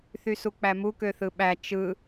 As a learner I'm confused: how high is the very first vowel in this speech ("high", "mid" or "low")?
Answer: high